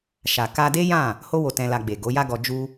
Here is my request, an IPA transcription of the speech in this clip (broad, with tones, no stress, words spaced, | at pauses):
ʃa˨ka˧de˦jã˦˨ | ho˦wo˧ tɛ̃˧la˧ɡ͡be˨ ɡo˨˦ja˦ɡɔ˧ d͡ʒu˦